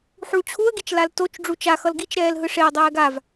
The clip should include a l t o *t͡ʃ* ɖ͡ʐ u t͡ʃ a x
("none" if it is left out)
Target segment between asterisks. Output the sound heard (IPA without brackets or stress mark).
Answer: t͡ʃ